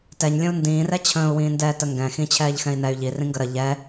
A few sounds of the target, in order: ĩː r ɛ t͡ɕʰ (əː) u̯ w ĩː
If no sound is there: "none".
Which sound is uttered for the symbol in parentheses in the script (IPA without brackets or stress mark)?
ə̃ː